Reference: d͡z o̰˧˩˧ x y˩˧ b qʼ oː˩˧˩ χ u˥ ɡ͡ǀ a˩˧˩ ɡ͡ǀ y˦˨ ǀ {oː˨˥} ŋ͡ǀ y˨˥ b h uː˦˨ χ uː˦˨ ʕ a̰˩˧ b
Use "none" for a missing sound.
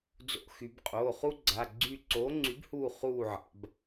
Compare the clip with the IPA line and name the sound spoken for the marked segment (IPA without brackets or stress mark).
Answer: oː˨˥